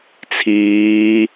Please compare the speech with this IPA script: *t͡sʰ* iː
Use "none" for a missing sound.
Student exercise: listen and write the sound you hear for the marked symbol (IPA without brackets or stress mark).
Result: t͡sʰ